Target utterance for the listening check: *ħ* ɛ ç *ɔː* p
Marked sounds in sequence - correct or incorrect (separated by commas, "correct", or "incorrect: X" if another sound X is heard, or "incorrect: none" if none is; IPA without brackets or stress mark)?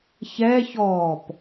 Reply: incorrect: ç, correct